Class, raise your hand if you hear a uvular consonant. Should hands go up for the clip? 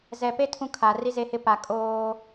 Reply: no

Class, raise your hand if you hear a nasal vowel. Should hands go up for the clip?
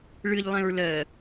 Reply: yes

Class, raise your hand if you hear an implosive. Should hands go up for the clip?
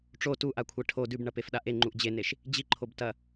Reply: yes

